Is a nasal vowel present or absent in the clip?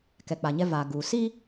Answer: absent